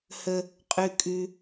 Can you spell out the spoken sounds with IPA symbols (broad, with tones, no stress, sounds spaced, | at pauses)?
h ə˥ | qʼ ʉ˥ kʼ ʉ˥